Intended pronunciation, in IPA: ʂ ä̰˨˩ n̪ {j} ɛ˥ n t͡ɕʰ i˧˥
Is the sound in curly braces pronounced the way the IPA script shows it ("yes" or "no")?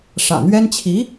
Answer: no